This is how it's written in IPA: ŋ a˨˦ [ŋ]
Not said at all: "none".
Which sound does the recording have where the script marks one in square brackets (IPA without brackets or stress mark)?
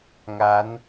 n